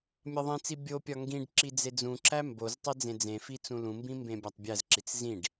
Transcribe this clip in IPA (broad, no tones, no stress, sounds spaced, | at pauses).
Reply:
mʲ ɒ ðˤ ĩ t͡s i bʲ o pʲ ɒ ŋ ɡ ĩ ɖ ǁ i d͡z e d͡z ũ ǁ æ m b o z tˤ i d͡z ẽ d͡z ẽ f i t͡s ũ l ũ m b ĩ m b ẽ bʲ æ tˤ bʲ æ z ǁ i t͡s z ĩ ɖ